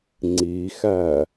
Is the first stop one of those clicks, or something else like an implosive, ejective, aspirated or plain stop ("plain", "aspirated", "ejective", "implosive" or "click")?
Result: click